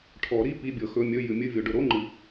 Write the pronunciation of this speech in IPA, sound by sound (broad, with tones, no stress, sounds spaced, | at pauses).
ʈʰ ɔ˨˩˦ ɾ i˧˥˧ p i˧˥˧ bʲ ɤ˨˩˦ x ɵ˧˥˧ mʲ ɵ˧˥˧ j ɨ˨˩˦ mʲ ɨ˧˥˧ vʲ o˨˩˦ ɖ ɵ˨˩˦ ɾ o˧˥˧ ŋ͡ǃ ɨ˨˩˦